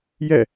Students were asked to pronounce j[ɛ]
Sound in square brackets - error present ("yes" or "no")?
no